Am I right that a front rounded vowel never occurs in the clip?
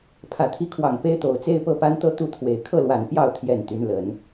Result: no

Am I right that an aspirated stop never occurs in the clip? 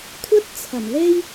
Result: no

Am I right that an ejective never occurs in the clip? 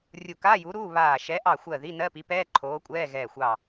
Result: no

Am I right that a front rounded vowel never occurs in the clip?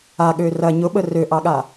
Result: no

